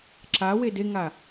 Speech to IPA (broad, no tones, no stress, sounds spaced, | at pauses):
ǁ a w e d e ŋ a